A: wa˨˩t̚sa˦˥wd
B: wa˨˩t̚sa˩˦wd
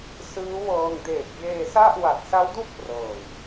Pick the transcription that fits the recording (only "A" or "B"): A